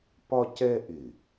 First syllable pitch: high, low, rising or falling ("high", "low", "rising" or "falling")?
high